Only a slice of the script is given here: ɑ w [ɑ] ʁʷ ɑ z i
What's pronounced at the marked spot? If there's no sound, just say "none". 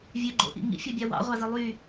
ɑ̰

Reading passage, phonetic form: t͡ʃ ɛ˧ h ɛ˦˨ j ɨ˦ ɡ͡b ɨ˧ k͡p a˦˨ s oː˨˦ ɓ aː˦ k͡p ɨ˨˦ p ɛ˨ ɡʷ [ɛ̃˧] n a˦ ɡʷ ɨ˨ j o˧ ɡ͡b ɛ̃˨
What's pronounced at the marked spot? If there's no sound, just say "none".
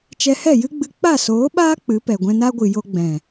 ɛ̃˧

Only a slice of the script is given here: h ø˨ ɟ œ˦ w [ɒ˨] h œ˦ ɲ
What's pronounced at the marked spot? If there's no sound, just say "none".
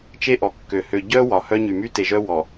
ɒ˨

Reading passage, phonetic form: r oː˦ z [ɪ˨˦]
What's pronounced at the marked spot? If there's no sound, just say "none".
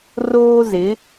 ɪ˨˦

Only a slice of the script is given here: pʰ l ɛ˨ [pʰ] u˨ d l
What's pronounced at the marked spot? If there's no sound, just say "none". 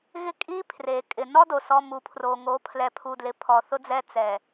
pʰ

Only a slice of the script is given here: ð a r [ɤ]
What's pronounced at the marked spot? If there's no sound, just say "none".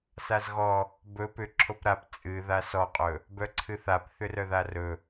ɵ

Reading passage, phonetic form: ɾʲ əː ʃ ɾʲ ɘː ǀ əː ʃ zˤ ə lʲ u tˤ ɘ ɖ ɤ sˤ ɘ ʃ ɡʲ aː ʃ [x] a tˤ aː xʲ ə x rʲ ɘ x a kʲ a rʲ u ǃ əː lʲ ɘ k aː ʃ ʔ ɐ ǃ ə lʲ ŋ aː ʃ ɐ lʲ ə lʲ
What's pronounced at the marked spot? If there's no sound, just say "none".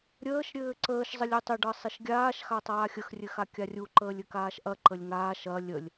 x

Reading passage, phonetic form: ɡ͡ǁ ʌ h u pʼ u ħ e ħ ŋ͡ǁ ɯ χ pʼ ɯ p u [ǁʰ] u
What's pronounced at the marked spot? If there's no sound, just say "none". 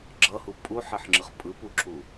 ǁʰ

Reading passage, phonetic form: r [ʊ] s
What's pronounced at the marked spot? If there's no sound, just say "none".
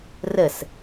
ə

